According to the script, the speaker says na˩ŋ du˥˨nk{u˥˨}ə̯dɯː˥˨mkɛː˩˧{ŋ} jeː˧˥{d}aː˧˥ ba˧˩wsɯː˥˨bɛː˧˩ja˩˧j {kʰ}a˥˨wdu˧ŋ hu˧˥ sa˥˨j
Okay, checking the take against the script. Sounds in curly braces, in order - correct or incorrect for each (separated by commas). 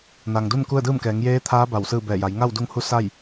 correct, correct, incorrect, incorrect